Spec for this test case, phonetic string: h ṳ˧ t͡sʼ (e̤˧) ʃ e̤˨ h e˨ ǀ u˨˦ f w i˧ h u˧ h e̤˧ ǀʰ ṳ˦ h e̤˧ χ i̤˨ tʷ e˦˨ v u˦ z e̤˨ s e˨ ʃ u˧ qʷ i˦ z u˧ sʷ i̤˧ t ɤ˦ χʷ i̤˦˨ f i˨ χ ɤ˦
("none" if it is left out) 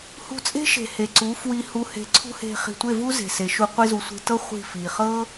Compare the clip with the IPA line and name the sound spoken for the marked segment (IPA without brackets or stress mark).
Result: e̤˦